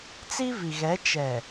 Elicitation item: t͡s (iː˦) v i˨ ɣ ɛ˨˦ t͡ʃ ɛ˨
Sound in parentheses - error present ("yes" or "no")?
yes